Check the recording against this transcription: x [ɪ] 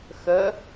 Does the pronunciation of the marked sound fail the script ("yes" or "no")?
yes